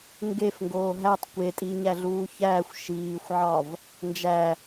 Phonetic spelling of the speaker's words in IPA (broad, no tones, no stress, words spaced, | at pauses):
ŋɡefŋɡoː ɦætˤ kʷetʼiɲæɮuː çæːxʷ ʃiːxʷʕɒv | nd͡ʒæ